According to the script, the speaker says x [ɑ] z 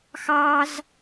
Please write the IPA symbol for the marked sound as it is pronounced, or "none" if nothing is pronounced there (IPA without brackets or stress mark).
ɑ